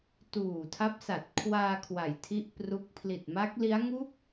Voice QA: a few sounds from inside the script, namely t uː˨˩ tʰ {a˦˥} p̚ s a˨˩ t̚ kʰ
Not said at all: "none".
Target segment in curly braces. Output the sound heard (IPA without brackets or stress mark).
a˦˥